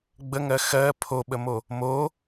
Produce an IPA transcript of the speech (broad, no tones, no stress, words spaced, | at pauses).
ɡ͡bəŋɜ xɜ pʰoɓəmo | mo